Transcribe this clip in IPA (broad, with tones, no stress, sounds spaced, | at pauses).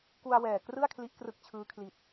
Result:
k u˧ a̯ w ɛː˨˩ k r ɯ˥˩ a̯ kʰ l i˦˥ ʔ k r ɯ˦˥ k̚ t͡ɕʰ ɯː˦˥ kʰ l i˨˩ t̚